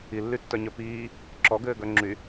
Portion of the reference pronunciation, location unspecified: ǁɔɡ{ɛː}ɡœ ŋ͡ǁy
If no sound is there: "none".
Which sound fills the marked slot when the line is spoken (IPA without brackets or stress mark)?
ɘː